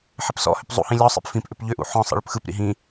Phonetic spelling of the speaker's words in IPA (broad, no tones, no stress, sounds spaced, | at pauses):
ħ ɪ p s ɔ̰ h ʏ p zˤ ṵ h ĩ lʲ ɔ sˤ ḭ p f ĩ p ʔ ʏ p ʎ ʏ ʔ ṵ ħ ɔ̃ sˤ ḭ ɭ ʏ p x ɯ p ɾ ḭ ɦ ĩ